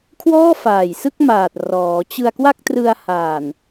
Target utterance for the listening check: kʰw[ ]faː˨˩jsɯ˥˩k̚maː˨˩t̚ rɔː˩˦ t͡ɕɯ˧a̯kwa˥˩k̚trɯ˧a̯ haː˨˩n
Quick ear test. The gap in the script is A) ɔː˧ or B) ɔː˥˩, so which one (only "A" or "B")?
B